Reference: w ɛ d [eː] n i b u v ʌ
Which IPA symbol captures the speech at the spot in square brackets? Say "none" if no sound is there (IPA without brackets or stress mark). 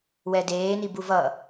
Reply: eː